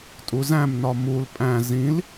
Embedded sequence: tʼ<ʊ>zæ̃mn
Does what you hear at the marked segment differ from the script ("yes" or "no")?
yes